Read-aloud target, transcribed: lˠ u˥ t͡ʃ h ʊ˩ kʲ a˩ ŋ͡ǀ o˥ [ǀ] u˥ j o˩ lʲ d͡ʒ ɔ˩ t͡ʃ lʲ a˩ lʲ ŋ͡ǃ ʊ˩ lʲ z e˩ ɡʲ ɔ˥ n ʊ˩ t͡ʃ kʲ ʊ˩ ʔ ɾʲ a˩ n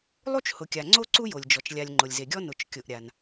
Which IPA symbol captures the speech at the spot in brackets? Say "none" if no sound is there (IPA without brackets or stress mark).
ǀ